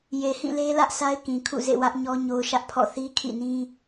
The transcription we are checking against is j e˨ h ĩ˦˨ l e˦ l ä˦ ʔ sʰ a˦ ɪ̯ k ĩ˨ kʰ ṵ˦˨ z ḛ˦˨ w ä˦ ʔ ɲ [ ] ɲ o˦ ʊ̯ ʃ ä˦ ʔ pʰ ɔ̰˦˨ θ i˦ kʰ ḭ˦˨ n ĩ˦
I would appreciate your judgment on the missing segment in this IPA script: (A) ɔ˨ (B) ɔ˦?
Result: B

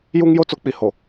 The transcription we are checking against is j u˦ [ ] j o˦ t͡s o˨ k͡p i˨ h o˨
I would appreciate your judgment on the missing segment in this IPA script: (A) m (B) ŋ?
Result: B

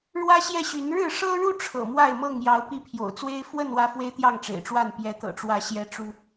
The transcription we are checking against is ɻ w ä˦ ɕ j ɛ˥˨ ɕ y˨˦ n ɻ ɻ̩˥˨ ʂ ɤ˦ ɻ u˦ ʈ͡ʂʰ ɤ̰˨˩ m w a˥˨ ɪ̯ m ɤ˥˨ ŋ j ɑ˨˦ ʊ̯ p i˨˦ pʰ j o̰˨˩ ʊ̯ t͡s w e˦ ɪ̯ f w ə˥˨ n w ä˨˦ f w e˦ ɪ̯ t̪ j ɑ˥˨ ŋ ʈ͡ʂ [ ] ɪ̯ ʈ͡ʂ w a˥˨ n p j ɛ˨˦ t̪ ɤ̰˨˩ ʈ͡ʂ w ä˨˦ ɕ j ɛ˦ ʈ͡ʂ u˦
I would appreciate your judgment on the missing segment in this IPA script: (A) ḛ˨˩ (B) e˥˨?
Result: A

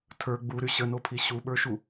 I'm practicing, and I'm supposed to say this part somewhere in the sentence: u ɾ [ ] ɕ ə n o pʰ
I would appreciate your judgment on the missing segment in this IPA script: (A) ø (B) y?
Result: B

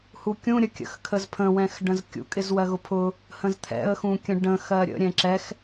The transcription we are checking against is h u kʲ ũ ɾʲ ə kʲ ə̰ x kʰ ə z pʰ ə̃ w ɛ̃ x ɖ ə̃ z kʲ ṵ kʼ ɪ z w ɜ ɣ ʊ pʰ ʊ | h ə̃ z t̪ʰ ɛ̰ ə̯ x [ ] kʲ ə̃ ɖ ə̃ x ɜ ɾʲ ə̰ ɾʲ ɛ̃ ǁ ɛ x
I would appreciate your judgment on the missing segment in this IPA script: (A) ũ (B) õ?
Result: A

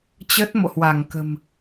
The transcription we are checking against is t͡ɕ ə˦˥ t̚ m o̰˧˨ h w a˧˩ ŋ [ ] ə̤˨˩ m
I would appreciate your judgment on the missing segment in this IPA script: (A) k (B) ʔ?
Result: A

